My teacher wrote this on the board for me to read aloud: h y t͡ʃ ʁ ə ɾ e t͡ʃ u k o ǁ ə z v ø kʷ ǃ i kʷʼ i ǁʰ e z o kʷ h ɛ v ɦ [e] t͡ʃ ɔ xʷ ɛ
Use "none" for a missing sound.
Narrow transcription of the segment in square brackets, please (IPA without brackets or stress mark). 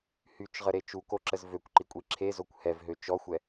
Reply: ø